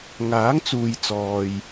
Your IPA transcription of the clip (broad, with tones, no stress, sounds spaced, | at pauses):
ŋ aː˨˥ ŋ t͡s uː˨ j t͡s ɔː˨ j